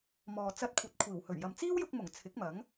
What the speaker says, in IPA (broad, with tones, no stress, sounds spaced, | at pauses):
m ɔː˨ t͡s ɐ˧ t̚ kʷʰ ɐ˨ t̚ kʷʰ iː˨˩ w h ɵ˨˩ ɥ j ɐ˨ m t͡s iː˥ w j ʊ˧ k̚ m ʊ˨˩ ŋ t͡sʰ ɪ˨˥ k̚ m ɐ˨˥ ŋ